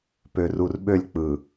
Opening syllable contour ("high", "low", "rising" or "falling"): low